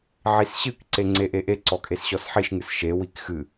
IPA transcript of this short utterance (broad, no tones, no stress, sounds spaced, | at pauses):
ʕ i s ɕ ɨ k ǀ e ŋ͡ǀ e ʔ e ʔ e ǀ ɔ kʼ e s ɕ ɔ s ħ i ʃ ŋ ɨ s ʃ e w i k x ɨ